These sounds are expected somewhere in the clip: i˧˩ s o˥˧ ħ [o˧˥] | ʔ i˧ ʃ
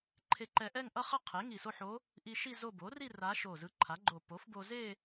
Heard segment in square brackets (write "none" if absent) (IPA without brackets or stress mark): o˧˥